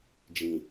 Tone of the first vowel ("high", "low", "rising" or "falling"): low